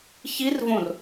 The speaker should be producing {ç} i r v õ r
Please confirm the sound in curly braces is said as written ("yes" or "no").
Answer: yes